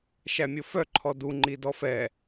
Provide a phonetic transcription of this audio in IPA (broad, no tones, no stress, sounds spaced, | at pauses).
ʃ æ mʲ o f œ ǃʰ ɔ d u ŋ͡ǃ i d ɔ f ɛ